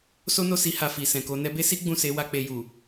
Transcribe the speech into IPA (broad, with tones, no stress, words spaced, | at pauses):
so˦no˦˨si˧ ha˧fi˨ sɛ̃˨ko˧ nɛ˧be˦si˦ ɡ͡bũ˦˨se˨˦wa˧ k͡pe˧ ju˨